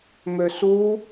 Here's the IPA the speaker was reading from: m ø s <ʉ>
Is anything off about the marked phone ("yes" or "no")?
yes